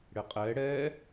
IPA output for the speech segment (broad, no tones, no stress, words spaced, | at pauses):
ɽɪqʼɛ ɽɛ